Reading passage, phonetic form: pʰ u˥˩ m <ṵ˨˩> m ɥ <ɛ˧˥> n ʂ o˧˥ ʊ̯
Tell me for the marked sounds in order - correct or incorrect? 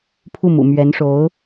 correct, correct

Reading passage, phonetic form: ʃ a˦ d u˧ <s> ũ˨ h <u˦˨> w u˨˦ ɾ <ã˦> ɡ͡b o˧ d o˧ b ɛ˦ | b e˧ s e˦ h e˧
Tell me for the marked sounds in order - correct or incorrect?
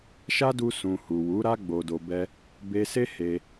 correct, incorrect: u˨, incorrect: a˦

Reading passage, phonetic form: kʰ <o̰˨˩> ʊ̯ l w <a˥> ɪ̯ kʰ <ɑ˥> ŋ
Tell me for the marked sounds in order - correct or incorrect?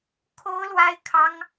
incorrect: o˥, correct, correct

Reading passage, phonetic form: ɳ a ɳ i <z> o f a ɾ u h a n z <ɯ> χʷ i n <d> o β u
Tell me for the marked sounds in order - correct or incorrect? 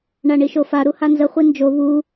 incorrect: ʃ, incorrect: ə, incorrect: d͡ʒ

